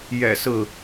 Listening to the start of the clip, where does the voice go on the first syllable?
low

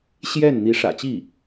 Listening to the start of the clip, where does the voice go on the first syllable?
falling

